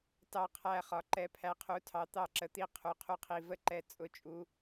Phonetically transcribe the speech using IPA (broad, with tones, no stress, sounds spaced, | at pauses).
t ɑ˦˨ qʰ æ˦˨ χ ɒ˨˦ ǃ ɛ˨˦ pʰ æ˨˦ qʰ u˨˦ tʰ ɑ˨˦ t̪ ɑ˦˨ ǁ ə˨˦ t̪ i˦˨ qʰ u˨˦ qʰ u˦˨ qʰ i˨˦ v ə˦˨ ǃ ɛ˦˨ t͡sʼ ʊ˦˨ t͡ʃʼ u˨˦